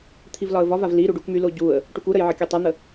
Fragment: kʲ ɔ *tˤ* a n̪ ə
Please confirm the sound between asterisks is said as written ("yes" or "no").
yes